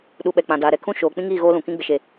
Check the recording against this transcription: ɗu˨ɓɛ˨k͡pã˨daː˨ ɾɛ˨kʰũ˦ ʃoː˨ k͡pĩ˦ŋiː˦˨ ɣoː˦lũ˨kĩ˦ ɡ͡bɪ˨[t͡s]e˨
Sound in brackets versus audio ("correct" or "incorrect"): incorrect